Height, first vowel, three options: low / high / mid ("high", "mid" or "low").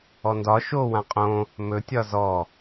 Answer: mid